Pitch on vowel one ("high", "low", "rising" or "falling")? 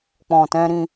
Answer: low